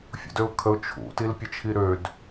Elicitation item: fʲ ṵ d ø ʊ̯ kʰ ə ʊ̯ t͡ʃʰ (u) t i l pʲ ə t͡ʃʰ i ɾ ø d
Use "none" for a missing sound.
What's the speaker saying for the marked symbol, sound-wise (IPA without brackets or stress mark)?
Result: ṵ